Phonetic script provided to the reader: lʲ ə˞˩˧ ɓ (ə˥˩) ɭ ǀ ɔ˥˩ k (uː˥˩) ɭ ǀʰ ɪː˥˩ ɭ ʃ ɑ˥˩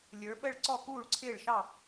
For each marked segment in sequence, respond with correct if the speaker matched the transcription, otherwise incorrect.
correct, correct

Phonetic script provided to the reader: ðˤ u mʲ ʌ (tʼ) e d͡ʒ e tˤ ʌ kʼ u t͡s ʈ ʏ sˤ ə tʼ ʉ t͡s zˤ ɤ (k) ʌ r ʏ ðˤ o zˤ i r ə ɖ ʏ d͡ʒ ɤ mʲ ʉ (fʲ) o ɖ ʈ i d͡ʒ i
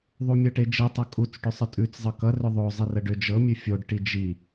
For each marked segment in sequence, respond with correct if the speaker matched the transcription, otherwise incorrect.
incorrect, correct, correct

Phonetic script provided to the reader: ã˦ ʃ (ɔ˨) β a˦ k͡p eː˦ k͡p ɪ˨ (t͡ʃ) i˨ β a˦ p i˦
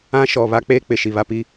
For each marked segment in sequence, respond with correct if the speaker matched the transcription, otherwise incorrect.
correct, incorrect

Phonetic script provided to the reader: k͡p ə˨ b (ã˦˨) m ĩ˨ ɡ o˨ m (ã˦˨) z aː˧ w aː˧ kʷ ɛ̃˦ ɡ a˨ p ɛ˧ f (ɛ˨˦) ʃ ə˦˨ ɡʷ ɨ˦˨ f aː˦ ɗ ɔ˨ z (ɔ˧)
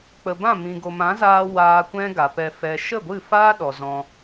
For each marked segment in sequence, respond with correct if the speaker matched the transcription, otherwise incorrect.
correct, incorrect, incorrect, incorrect

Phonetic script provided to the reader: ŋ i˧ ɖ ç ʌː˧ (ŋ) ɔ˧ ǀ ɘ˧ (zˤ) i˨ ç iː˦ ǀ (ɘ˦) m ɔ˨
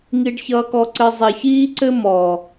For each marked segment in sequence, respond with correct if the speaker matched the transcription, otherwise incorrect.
incorrect, correct, correct

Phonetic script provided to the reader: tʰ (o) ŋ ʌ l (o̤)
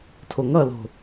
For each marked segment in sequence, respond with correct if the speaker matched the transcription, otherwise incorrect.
correct, correct

